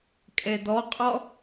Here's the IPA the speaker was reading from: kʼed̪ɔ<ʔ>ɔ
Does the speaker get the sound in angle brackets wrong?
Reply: yes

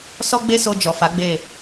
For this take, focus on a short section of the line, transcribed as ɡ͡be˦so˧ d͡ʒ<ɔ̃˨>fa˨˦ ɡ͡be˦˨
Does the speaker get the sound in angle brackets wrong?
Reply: yes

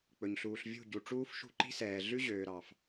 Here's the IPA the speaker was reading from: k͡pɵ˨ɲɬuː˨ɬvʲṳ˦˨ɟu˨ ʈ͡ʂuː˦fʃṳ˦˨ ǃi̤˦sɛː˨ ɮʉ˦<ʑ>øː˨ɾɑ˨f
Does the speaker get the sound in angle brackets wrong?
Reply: no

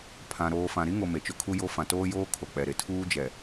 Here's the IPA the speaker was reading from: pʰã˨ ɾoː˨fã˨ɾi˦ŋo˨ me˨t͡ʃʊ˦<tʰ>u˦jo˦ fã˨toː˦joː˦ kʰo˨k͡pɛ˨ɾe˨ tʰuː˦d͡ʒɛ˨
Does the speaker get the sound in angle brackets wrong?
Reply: yes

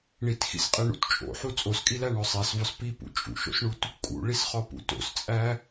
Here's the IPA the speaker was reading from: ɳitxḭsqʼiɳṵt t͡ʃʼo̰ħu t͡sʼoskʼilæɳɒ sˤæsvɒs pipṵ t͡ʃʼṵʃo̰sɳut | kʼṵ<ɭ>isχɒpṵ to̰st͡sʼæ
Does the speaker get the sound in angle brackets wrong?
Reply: no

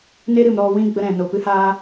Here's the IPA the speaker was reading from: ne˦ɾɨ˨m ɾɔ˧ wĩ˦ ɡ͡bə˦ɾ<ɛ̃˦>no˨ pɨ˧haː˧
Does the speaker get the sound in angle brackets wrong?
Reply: yes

